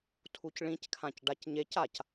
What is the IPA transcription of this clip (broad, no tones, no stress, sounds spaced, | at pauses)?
tʰ u c ɭ ĩ c kʰ ã c ɖ a c ɲ e c a c